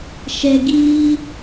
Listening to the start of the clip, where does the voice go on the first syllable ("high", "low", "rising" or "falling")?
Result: low